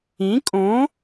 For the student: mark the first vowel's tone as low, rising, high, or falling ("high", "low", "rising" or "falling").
rising